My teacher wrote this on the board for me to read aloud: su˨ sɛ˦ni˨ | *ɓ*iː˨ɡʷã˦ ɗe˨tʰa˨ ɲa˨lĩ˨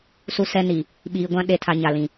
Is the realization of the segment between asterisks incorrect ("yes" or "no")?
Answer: no